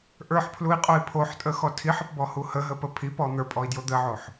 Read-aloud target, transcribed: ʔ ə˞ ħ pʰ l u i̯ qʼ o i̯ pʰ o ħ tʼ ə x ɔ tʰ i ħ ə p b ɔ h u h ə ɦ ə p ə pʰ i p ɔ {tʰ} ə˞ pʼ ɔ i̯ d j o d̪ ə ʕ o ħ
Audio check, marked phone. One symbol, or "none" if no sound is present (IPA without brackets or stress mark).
n̪